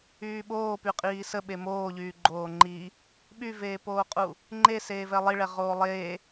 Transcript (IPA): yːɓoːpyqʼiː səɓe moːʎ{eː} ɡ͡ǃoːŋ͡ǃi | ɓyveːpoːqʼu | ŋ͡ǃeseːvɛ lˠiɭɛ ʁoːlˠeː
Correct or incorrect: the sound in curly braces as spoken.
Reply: incorrect: yː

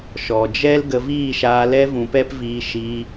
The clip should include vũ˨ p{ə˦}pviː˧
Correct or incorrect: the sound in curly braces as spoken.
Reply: incorrect: ɛ˦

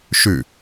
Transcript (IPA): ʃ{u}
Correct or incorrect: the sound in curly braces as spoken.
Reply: incorrect: ʉ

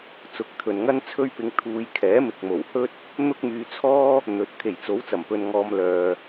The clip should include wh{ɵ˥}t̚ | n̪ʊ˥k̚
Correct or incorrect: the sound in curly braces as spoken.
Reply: correct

